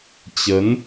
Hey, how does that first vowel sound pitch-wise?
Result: rising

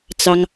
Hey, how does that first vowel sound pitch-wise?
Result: high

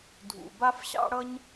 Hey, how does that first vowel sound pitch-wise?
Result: low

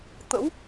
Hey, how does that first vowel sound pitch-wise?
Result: rising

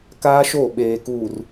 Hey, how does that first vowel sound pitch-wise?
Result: high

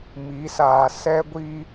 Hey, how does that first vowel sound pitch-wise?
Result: rising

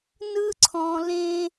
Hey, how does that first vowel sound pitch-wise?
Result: high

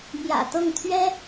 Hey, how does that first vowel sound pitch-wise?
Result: low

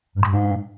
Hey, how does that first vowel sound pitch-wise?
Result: high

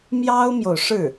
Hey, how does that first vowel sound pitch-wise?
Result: high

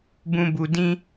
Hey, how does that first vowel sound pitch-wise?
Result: low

